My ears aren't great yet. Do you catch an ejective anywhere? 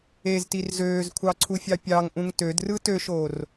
no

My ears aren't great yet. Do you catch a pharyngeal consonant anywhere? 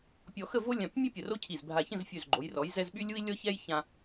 no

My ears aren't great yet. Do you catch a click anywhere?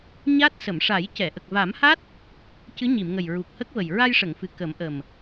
no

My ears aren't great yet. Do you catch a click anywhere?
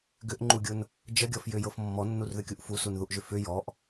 yes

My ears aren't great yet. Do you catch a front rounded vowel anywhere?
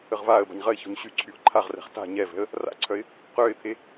yes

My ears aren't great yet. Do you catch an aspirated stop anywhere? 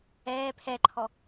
yes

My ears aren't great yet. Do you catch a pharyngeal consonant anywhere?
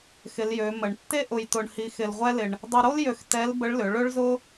no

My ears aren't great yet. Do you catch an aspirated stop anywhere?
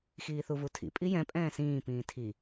yes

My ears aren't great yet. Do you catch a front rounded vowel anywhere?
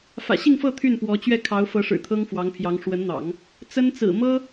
yes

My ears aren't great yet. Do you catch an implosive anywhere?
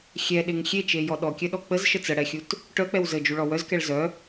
yes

